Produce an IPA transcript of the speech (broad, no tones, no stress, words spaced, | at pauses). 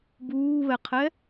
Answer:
buːβɛqʰɛ